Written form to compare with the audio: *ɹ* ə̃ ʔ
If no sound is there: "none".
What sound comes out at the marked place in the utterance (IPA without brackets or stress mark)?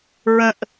ɹ